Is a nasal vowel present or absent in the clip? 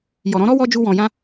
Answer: present